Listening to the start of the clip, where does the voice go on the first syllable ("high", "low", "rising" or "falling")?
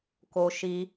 high